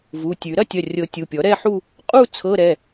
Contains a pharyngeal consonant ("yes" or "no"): yes